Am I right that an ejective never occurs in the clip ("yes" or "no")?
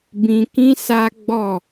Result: yes